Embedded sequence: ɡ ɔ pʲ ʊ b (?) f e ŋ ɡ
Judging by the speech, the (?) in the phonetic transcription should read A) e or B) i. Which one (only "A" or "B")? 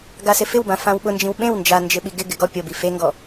B